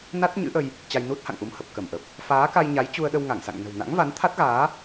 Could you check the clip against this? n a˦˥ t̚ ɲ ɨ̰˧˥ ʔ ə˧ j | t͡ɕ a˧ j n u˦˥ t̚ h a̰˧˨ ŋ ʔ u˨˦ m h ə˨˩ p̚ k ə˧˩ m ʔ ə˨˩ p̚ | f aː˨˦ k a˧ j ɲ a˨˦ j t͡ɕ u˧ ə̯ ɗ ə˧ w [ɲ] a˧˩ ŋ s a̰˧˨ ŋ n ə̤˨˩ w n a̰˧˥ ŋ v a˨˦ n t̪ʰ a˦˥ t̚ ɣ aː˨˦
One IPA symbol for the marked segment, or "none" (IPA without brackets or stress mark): ŋ